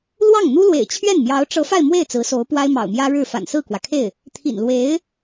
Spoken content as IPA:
l w ɑ˥˩ ŋ n̪ u˥ l w ḛ˨˩ ɪ̯ t͡ɕʰ ɥ ɛ˥˩ n m j ɑ˧˥ ʊ̯ ʈ͡ʂ ɤ˧˥ f a˥˧ ɪ̯ m w e˥˩ ɪ̯ t͡s ɹ̩˧˥ s o˧˥ ʊ̯ p w a˥ ɪ̯ m ɑ̰˨˩ ʊ̯ m j ä˥ ɻ ɻ̩˥˩ f a̰˨˩ n s ɹ̩˥˩ k w ä˩ kʰ e˥˩ ɪ̯ | t̪ʰ ḭ˨˩ n l w e˧˥ ɪ̯

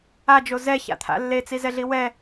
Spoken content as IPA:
a d͡ʒ o z ɛ ç a̰ t̪ʰ a̰ lː e t͡s i z ɛ ɮ i w ɛ

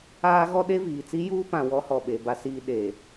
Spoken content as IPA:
aː˦ ɣ ɔ˦ ɗ e˦ v iː˨ t͡s i˦ j uː˦ p ã˨ w ɔ˨˦ h ɔ˨ ɓ e˨ b a˦ s iː˦ ɗ e˨

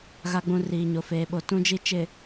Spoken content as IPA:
ɣ a˨ ɡ͡b ũ˨ r iː˨ ɲ o˨ f eː˨ ɓ o˨ t ũ˨ d͡ʒ i˨ t͡ʃ ɪ˨

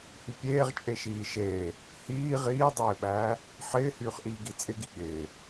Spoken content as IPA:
h y pʲ eː ʁ t͡ʃʼ e ʃ iː ʃ eː | h iː ʁ iː dˤ ɪː ɓ æː | ħ ɪː h yː χ ʔ iː ɡ i t͡sʼ ɪ ɡ i ɠ ɪː

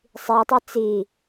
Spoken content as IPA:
sˤ i tˤ e t͡s i

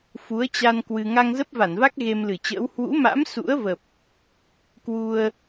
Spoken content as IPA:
f u˨˦ ə̯ t͡ɕ a˧ n k w ɨ˧ ŋ a˧ ŋ z ə˦˥ p̚ v a˧˩ n v a˦˥ k̚ ɣ e˧ m l ɨ˧˩ t͡ɕ ə̰ː˧˥ w h w ṵ˧˥ m a̰˧˥ m s ṵ˧˥ ə̯ v ə˨˩ p̚ | k w u˧ ə̯

